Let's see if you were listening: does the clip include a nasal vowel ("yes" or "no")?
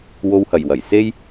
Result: no